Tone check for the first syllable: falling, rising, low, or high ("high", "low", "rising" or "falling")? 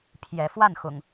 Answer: rising